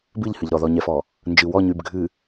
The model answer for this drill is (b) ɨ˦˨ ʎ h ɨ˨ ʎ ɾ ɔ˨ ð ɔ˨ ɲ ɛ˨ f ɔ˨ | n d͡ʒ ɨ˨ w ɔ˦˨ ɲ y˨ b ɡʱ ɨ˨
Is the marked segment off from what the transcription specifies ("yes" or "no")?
no